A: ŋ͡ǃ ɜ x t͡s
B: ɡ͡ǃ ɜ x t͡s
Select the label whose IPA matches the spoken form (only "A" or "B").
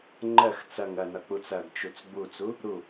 A